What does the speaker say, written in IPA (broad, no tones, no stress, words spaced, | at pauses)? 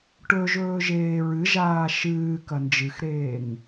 ʈɵ ʒɵːʒeːɹɨʒaː ʃɨːkɐ nd͡ʒɨxɾeːŋ